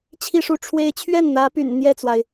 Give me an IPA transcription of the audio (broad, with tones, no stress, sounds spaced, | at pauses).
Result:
t͡ɕʰ i˥˧ ʂ u˥˩ ʈ͡ʂʰ w e˥ ɪ̯ t͡ɕʰ ɥ ɛ˥˩ n n̪ ä˧˥ p y̰˨˩ n n̪ j ɛ˥˩ t͡s w a˩ ɪ̯